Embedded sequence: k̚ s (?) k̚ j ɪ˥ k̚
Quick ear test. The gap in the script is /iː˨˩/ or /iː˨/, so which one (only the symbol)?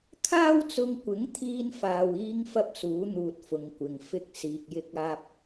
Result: iː˨